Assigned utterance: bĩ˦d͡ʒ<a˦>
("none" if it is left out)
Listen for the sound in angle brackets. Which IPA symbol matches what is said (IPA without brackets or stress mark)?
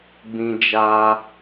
a˦